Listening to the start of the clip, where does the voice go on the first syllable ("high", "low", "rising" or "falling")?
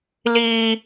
high